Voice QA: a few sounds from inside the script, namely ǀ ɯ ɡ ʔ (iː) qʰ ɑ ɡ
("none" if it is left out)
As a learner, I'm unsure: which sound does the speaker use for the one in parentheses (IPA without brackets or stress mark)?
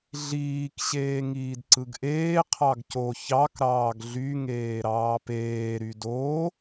eː